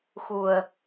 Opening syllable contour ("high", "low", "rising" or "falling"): low